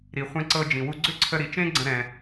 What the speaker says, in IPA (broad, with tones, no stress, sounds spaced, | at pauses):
ɾ i˩ χʷ ɛ̃˧ ǀ ɤ˧ d͡ʒ ĩ˩ w u˧ ɡ͡ǀ ʏ˥ ǀʰ ə˧ ɾ i˩ t͡ʃ ẽ˥ ɡ͡ǀ ə̃˧ ɾ ɛ̃˩